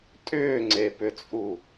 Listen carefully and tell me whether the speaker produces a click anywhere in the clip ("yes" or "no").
yes